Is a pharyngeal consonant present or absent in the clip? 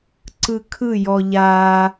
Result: absent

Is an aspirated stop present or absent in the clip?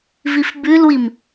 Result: absent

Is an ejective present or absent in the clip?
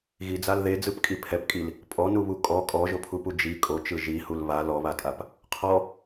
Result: present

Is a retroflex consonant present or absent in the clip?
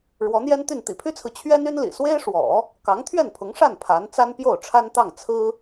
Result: present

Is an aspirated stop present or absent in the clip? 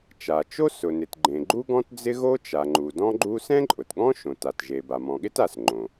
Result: absent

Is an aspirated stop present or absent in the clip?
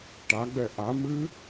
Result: absent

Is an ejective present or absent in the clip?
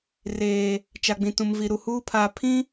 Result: absent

